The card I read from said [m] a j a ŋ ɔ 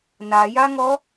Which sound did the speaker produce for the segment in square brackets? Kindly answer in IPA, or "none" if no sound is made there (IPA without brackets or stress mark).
n